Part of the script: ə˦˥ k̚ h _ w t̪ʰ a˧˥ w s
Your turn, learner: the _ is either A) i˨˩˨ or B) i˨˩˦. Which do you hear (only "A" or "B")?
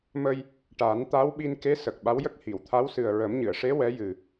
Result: A